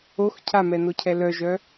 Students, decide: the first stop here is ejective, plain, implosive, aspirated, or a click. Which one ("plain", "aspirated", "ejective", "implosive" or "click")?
aspirated